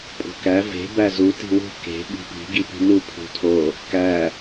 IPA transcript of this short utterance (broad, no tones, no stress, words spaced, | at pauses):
pʼo̤kæ ve̤ bæzu ti̤wṳ ke̤ ɓi̤pi̤ ɡipi̤nu pʰṳtʰo | kæ